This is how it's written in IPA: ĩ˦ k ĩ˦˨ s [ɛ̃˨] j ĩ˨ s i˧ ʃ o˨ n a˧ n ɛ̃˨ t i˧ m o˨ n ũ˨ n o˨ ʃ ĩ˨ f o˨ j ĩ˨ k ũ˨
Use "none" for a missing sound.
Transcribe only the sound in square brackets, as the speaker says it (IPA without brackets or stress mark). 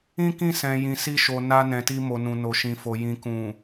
ɛ̃˨